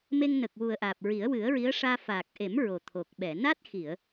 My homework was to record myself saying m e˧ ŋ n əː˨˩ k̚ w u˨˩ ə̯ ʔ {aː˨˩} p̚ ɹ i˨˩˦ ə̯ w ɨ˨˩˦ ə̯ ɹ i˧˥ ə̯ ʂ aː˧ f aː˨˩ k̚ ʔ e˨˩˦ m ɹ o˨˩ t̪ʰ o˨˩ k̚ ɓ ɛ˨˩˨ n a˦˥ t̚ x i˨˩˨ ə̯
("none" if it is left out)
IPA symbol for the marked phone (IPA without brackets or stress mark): aː˨˩